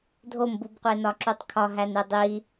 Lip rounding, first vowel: rounded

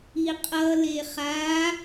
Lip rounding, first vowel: unrounded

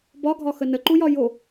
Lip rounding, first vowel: rounded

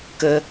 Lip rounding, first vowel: unrounded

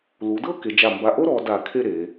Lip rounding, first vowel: rounded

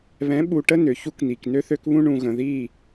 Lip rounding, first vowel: unrounded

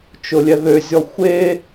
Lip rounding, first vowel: rounded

